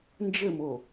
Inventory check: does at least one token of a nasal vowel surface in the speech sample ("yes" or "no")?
no